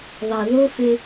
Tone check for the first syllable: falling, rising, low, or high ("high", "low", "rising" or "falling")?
low